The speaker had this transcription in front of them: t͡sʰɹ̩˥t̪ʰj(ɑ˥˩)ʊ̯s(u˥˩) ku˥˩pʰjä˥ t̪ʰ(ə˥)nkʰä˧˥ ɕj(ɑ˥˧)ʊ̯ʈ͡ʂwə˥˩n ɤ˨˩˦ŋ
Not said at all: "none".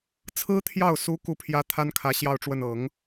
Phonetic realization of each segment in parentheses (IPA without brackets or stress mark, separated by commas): ɑ˥˩, u˧˥, a˥, ɑ˥˧